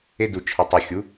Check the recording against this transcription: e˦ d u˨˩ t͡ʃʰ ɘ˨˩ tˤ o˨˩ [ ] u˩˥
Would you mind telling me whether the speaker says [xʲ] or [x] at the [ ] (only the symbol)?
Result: xʲ